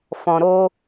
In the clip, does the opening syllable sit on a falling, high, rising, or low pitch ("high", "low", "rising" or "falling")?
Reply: low